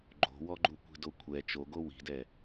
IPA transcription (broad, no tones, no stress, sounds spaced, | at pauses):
ɡ͡ǃ o̤ w ɔ ɡ͡ǃ u kʷ i̤ d o kʷʰ ɛ t͡ʃ o ɡ o w i̤ d ɛ